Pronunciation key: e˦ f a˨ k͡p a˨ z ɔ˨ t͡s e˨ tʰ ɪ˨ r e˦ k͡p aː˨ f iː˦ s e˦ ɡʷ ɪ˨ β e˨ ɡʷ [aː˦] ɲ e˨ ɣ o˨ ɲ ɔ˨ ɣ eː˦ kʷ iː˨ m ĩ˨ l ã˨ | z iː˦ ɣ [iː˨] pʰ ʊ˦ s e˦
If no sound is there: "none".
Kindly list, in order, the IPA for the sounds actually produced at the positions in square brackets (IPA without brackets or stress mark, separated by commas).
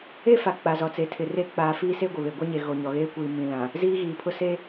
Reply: a˦, iː˨